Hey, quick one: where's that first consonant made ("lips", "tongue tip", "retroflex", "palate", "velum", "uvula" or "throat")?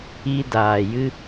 tongue tip